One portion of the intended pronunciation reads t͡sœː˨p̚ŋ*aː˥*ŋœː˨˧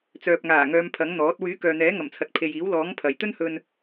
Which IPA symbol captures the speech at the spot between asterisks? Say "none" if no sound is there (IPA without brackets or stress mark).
aː˨˩